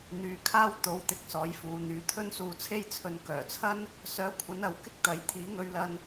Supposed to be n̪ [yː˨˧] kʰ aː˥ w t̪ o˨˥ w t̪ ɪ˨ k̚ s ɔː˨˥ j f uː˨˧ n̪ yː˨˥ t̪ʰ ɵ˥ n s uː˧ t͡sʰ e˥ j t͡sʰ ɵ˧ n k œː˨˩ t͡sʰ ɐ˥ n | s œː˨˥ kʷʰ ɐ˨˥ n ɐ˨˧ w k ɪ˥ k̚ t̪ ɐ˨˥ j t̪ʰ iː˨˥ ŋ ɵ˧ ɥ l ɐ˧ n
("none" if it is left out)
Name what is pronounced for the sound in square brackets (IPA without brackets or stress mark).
yː˨˧